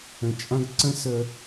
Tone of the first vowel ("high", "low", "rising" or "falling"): low